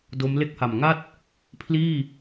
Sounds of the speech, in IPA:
d o˦˥ m l e˥˩ k̚ h a˨˩ m ŋ a˥˩ t̚ | pʰ l iː˥˩

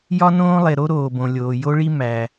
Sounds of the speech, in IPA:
j ɒ˥ n õː˥ lˠ e˩ ɾ o˥ ɾ oː˩ b õ˩ lʲ oː˩ j o˥ ɭ i˥ m æ˩

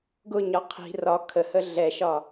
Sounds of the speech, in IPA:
ɡ ʊ ɲ ɒ qʰ i̤ r ɒ kʰ ə h ə ɮ ɛ ʃ ɒ

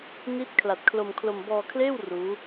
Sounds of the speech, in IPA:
n i˦˥ t̚ kʰ l a˨˩ t̚ kʰ l o˧ m kʰ l o˧ m b ɔː˧ kʰ l eː˥˩ w r uː˦˥

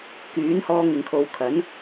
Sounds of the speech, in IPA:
k yː˨˥ n h ɔː˧ ŋ ɪ˨ ŋ kʰ o˨˧ w kʰ ɐ˨˥ n

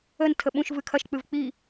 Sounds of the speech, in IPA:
ə n tʰ ə ɓ ũ ʃ v ɨ kʰ ɐ ʃ k͡p ɨ v k͡p i

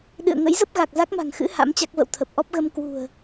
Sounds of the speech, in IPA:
ɗ ɨ̰˧˨ ə̯ ŋ ə̰˧˥ j z ə˦˥ p̚ ɣ a˨˩ k̚ z a˦˥ k̚ m a̤˨˩ ŋ x ɨ̰˧˥ h a̰˧˥ m t͡ɕ a˦˥ k̚ v ə̰˧˨ w t̪ʰ ə˨˩ p̚ ʔ ɔ˦˥ p̚ ɣ ə˧ m k w ṳ˨˩ ə̯

